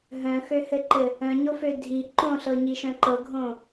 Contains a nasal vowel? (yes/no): yes